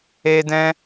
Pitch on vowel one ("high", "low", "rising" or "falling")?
high